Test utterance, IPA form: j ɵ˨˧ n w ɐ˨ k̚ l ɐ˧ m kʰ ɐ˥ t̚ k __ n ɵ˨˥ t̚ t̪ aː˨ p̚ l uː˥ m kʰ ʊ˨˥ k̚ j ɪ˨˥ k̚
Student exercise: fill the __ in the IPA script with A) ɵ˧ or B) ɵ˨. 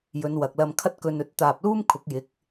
A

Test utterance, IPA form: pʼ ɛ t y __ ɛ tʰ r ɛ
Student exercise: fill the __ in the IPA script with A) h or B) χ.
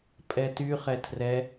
B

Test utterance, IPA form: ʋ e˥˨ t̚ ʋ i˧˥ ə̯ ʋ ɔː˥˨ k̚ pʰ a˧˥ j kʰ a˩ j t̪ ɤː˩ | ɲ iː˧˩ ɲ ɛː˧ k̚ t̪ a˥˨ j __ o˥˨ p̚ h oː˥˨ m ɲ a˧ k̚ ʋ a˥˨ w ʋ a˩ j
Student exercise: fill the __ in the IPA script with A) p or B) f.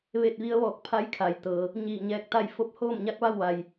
B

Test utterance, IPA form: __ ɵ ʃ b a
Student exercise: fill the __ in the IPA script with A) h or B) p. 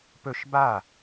B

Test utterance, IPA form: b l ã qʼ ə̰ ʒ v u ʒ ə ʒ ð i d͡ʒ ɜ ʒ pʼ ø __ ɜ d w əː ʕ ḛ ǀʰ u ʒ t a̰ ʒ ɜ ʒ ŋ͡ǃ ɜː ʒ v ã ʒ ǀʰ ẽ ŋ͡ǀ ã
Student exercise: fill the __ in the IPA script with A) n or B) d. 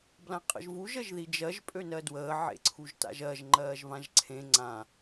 A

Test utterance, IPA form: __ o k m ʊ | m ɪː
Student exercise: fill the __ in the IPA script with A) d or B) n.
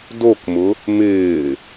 A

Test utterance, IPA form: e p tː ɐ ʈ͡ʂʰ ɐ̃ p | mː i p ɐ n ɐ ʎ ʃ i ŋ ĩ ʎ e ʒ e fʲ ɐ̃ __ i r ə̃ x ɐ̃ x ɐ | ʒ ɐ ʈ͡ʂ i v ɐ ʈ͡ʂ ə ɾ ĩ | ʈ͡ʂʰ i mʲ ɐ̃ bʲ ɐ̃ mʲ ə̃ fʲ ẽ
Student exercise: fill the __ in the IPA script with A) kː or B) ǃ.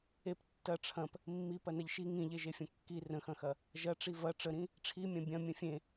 A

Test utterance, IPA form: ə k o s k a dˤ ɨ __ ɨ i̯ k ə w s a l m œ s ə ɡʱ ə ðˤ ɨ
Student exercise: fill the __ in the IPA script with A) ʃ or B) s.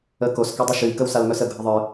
A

